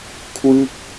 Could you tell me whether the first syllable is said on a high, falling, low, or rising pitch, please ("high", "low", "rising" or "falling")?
falling